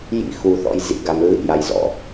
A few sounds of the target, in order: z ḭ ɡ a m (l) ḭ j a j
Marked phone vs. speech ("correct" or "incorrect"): incorrect